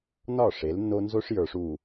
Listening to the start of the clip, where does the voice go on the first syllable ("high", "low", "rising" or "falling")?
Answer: falling